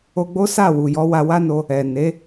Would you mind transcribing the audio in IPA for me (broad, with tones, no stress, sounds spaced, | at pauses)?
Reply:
o˧ ɡ͡b o˦ s a˦˨ w u˨ j ɔ˨˦ w a˧ w a˦ n o˧ | ɛ˨ n e˨˦